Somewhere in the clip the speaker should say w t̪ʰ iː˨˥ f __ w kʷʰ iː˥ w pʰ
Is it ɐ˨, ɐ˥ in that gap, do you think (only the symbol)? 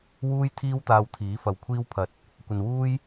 ɐ˨